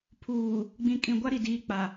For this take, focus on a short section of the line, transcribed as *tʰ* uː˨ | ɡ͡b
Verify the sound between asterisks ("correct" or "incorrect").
incorrect